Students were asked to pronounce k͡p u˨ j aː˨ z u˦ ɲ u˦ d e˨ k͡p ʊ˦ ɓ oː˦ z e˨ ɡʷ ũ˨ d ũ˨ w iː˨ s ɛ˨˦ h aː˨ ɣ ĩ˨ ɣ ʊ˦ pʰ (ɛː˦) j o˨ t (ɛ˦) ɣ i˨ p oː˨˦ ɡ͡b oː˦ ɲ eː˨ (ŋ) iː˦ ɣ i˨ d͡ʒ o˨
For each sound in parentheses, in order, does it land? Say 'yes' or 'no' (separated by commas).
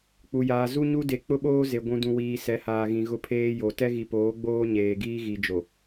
no, yes, no